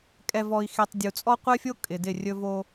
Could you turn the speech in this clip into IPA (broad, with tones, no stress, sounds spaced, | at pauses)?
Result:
kʼ ɛ˨ v ɔ˨ i̯ x e˨ tˤ dʲ u˨ t͡sʼ ɔ˦ qʷ ɛ˦ fʲ o˦ kʼ ɪ˨ d ɪ˦˨ rʲ ɵ˦ v o˦